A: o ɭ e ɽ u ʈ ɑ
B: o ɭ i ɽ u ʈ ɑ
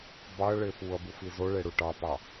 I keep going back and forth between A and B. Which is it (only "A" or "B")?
A